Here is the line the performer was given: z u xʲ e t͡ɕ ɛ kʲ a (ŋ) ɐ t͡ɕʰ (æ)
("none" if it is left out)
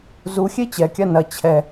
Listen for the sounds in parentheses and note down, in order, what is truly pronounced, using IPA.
n, ɛ

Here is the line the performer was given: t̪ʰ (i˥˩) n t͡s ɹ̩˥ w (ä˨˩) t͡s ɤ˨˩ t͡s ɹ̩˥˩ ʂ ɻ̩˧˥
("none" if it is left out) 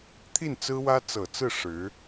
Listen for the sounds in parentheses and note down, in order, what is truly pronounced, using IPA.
i˥˩, ä˥

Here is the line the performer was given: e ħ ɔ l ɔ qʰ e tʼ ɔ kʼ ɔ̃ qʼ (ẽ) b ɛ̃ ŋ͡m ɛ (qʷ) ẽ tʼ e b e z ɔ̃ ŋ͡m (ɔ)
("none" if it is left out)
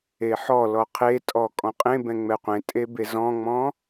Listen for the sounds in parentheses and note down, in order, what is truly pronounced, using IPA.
ẽ, qʷ, ɔ̃

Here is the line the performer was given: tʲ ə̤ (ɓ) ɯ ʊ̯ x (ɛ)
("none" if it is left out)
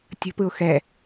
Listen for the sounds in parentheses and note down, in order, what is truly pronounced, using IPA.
p, ɛ

